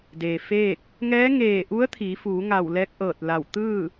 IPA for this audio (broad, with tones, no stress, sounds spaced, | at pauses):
d eː˩ f eː˥˨ k̚ | ŋ ɛː˧˥ ŋ eː˧˩ ʔ u˧˥ ə̯ t̪ʰ iː˩˧ f uː˩˧ ŋ a˧˩ w l ɛː˧˥ k̚ ʔ ɤː˧˩ t̚ l a˧˩ w t̪ ɯː˥˨